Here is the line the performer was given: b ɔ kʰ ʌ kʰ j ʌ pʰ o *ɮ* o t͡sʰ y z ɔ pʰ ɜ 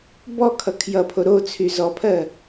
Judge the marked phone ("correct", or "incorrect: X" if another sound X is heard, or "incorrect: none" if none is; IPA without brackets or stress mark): incorrect: ɾ